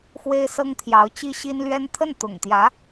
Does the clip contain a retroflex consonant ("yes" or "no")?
no